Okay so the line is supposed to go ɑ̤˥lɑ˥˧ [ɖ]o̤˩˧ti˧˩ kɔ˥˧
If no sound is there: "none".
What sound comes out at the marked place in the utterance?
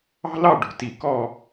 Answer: ɖ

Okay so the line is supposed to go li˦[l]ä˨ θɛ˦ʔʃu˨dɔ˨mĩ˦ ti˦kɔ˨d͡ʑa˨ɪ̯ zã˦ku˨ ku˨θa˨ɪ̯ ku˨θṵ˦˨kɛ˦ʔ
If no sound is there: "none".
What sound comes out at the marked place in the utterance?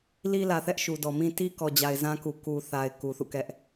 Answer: l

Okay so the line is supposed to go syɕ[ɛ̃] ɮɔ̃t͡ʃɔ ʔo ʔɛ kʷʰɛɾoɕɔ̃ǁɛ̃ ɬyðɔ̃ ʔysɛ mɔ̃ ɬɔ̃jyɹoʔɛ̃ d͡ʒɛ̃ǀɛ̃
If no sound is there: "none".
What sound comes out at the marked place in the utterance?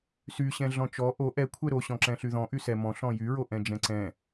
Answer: ɛ̃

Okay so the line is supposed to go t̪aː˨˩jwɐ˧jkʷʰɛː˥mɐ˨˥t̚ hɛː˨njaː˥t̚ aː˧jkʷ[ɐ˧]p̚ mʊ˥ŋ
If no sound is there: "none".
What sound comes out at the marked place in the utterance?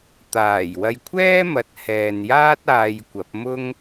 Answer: ɐ˨˥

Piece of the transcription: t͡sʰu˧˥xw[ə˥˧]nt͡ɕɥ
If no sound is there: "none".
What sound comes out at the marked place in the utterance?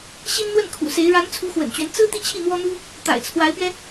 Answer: ə̰˨˩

